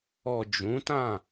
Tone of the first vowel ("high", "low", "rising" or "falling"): low